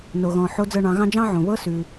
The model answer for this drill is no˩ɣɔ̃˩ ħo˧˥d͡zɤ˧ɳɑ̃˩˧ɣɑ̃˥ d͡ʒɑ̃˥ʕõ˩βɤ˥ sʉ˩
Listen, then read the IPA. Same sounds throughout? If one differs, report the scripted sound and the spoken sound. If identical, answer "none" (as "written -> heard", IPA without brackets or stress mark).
none